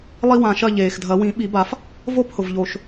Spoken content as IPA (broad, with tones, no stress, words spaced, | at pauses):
lˠi˥wã˧˩ʃɐ˥˨ ʎeː˩xdʱɐ˨˩˦wĩ˨˩˦ ɓi˨˩˦ba˨˩˦f | vo˥˨phʊ˩vʎo˩ʃ